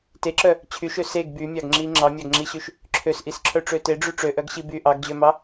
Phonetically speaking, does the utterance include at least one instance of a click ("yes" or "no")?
yes